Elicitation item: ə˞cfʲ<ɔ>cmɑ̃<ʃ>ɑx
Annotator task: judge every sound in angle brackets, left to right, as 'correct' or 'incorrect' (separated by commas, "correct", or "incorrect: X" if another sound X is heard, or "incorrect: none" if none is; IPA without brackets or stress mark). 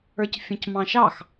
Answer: incorrect: ɔ̃, correct